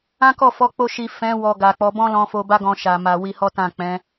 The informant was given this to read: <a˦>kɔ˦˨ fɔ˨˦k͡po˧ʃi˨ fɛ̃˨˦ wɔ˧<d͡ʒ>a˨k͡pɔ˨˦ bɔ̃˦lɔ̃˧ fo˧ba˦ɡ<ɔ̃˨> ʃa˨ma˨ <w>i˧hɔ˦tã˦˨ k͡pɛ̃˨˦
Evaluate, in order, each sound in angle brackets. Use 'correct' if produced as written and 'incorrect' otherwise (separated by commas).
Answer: incorrect, incorrect, incorrect, correct